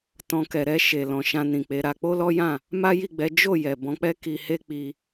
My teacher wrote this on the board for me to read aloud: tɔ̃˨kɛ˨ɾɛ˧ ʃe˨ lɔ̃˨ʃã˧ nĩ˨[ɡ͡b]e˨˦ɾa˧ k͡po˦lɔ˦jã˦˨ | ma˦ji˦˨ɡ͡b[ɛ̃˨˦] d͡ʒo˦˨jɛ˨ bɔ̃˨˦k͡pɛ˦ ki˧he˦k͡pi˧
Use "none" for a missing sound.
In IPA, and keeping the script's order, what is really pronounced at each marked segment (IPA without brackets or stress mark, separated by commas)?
k͡p, ɛ˨˦